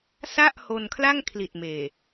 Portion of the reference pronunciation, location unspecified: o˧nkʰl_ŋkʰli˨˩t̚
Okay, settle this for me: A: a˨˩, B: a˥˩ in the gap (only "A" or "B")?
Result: B